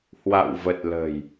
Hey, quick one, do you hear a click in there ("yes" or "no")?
no